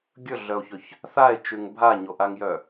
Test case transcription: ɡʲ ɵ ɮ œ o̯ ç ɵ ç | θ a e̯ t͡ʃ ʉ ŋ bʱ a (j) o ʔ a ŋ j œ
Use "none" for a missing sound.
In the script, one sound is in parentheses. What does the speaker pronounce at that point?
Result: ɲ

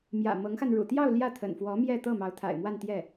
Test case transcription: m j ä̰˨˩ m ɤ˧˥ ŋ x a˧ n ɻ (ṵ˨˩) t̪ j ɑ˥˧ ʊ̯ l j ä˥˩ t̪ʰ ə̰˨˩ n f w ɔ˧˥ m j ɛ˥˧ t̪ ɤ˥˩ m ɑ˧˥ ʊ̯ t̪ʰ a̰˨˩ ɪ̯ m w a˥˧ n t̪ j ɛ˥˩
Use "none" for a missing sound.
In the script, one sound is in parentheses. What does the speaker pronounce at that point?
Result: ṵ˨˩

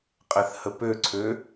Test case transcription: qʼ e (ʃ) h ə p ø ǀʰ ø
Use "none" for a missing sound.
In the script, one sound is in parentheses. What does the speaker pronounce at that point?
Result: θ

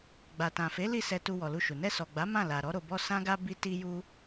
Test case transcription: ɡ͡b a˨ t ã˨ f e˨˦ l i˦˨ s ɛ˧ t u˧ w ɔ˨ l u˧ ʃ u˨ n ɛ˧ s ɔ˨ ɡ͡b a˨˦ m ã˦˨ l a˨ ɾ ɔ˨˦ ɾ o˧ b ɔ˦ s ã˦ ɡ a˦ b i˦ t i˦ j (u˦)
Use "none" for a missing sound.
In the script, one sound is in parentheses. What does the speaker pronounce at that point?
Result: u˦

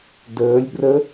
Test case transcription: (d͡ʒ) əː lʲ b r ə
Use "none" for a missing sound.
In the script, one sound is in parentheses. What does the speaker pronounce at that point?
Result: d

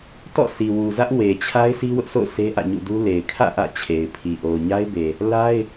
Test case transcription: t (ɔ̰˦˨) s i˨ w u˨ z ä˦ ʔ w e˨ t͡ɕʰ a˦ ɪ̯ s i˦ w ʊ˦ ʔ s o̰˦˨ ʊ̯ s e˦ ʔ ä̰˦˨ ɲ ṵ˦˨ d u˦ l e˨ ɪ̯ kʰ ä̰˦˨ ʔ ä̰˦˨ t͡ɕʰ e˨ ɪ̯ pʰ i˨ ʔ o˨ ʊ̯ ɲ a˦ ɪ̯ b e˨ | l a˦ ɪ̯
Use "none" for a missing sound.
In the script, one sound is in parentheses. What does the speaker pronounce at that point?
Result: ɔ̰˦˨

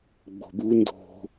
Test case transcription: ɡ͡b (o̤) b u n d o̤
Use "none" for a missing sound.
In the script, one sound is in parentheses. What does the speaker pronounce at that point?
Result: o̤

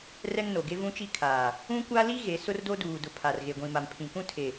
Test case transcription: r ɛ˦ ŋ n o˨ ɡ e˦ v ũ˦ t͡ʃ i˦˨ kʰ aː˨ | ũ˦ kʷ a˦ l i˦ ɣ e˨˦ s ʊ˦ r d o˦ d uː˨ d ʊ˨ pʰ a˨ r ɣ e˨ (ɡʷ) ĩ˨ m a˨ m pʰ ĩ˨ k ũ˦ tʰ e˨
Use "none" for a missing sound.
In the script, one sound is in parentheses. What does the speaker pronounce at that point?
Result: ɡʷ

